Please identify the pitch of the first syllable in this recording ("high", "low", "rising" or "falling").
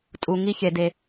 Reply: low